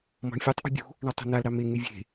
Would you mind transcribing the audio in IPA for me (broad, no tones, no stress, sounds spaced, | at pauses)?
m ɔ̤ ɳ fʲ u tˤ ʔ ṳ bʲ ṳ | ɳ ɔ tˤ ṳ n a l ɾ ɑ m e ŋ y vʲ e̤